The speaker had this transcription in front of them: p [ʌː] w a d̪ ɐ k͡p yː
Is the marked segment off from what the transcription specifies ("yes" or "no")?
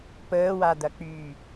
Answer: yes